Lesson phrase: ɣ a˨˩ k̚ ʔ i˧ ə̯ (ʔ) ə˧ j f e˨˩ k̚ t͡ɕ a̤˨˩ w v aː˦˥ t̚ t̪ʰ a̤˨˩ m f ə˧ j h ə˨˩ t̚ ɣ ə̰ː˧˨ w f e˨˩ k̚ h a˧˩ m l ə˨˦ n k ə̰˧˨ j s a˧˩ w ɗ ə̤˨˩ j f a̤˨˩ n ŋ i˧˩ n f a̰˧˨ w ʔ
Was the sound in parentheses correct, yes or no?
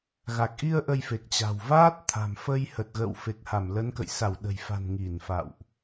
yes